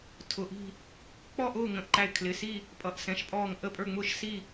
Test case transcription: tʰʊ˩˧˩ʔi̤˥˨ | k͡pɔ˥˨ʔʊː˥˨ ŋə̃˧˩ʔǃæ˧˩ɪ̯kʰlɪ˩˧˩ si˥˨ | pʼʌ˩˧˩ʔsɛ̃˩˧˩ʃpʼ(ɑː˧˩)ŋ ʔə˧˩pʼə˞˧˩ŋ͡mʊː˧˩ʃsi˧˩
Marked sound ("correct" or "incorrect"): incorrect